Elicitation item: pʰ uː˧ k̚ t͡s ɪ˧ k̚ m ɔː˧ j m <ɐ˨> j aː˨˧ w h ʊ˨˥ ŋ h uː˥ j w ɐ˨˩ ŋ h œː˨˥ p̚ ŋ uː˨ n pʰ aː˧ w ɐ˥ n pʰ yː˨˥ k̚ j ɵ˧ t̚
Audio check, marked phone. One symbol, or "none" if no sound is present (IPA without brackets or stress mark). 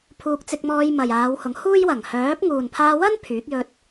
ɐ˨